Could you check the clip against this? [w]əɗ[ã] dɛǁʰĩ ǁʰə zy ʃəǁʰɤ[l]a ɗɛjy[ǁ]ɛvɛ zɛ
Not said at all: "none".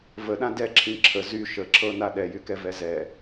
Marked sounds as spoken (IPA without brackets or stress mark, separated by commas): v, ã, n, k